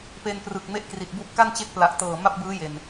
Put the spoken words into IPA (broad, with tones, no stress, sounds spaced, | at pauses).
p e˧ n p r ɯ˨˩ k̚ m e˥˩ ʔ k r i˨˩ t̚ b u˥˩ ʔ k a˥˩ n t͡ɕ e˦˥ k̚ p l a˨˩ ʔ t ɤː˨˩ m a˥˩ p̚ b ɯː˦˥ j e˨˩ n